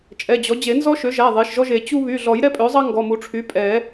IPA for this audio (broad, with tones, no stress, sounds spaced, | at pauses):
t͡ʃʼ ɛ˩˧˩ d͡ʑ ɔ˩˥ d͡ʑ e˨˩˦ n z ɔ˥ ʃ ø˩˥ ʒ æ˩˧˩ ðˤ e˩˧˩ ʃ ʒ ɔ˥ ʒ e˨˩˦ t͡ɕ u˥ β y˩˧˩ ɮ ɔ˨˩˦ j ɾ ɛ˥ pʼ ø˩˥ zˤ ɑ˥ ŋ ɡ ɔ˩˧˩ m u˨˩˦ ʈ͡ʂʰ y˩˥ pʼ ɛ˨˩˦